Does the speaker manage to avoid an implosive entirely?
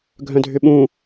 no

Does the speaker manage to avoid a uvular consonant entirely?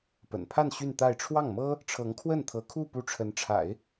yes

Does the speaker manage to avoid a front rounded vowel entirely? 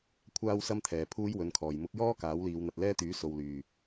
no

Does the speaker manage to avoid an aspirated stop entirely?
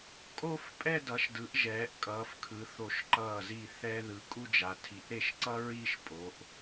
no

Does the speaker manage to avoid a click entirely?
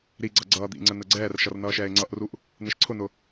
no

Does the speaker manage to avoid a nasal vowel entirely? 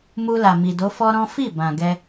no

